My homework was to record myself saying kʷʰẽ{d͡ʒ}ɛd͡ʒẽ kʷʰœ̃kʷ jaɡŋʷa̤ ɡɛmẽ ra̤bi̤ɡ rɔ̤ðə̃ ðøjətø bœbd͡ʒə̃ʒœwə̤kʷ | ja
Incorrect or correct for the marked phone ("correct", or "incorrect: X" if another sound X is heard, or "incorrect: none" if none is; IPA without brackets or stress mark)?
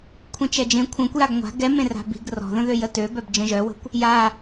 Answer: incorrect: t͡ʃ